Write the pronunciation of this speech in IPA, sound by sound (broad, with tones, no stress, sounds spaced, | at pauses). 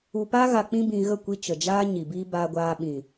u˧ p a˦ ɣ a˧ k͡p ĩ˦ b ĩ˧ ɣ ə˦˨ kʷ i˦ t͡ʃ ə˨ d͡ʒ aː˦ ɲ i˨ b i˦ b aː˧ ɡʷ aː˧ ɓ ĩ˨